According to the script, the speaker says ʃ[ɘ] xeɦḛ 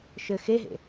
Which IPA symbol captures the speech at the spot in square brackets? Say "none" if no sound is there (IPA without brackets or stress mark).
ɘ